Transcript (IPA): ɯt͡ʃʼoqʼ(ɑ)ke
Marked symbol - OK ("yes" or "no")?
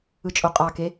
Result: yes